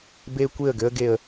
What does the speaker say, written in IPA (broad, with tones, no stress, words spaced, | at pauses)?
be˧ kʷe˦˨ə̯ɡø˦ə̯ɡe˧ə̯